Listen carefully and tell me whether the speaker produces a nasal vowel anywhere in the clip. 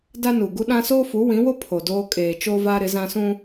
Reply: yes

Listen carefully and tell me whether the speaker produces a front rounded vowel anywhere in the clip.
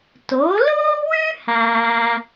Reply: no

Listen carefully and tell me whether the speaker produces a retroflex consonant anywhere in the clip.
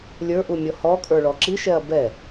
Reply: yes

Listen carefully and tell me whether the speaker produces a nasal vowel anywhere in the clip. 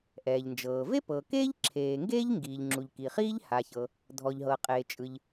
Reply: no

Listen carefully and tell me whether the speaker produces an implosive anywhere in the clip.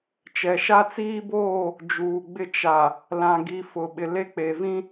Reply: yes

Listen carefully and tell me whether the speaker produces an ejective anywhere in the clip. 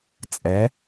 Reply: yes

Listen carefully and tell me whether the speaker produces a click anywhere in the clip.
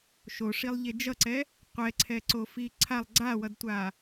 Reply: yes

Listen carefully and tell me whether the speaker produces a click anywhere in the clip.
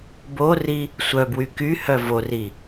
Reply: no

